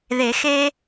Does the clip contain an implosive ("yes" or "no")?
no